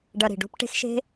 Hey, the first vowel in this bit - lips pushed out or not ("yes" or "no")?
no